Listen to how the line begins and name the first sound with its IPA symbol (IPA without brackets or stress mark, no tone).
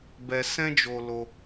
b